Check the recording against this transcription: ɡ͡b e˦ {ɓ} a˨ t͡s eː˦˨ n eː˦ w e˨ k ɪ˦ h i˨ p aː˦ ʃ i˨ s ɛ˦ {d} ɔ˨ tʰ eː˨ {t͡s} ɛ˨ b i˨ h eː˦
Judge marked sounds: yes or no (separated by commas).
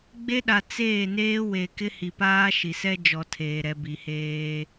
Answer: no, no, no